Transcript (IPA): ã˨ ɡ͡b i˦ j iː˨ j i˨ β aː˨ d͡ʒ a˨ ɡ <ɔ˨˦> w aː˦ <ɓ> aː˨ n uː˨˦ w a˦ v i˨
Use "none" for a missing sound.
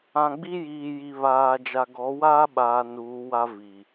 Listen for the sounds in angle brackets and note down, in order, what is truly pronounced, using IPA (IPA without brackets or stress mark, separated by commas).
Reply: ɔ˨˦, ɓ